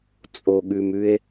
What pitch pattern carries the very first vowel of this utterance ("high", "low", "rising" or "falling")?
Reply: low